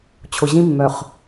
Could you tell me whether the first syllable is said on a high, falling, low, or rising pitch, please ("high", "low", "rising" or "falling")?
low